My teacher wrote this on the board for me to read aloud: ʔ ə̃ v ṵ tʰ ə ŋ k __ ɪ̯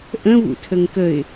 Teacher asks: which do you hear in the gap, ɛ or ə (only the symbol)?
ə